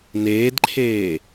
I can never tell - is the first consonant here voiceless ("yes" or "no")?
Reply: no